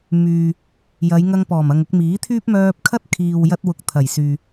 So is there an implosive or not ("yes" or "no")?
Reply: no